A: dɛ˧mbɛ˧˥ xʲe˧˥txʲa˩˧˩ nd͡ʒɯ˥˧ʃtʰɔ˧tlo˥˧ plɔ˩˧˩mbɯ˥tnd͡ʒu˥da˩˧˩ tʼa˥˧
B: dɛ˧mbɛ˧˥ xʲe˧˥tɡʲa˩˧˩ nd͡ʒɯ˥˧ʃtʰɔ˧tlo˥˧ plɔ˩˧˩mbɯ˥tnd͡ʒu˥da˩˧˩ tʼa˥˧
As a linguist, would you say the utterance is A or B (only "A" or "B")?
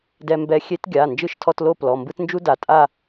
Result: B